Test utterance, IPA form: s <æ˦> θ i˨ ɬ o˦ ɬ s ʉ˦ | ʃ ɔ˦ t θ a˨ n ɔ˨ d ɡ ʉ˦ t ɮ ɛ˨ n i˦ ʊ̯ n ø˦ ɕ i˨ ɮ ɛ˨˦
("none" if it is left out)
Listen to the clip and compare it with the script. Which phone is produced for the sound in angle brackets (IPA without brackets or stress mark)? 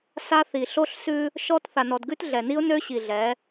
a˦